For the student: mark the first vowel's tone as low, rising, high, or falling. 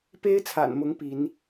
high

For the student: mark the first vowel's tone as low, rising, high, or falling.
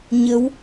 rising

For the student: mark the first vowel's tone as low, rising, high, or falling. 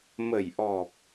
low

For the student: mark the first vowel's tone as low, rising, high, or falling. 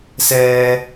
high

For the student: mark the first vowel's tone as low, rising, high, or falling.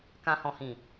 low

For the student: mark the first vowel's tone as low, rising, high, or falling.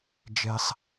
high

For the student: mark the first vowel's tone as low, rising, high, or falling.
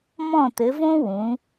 falling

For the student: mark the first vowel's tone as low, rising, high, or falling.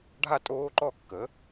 falling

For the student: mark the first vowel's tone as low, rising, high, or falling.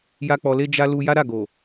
high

